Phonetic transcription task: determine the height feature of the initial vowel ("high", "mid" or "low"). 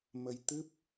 mid